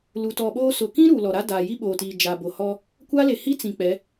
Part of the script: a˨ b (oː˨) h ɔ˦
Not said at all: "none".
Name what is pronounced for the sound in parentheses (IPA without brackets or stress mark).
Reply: o˨